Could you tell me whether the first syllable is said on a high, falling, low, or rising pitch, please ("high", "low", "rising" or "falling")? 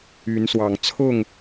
rising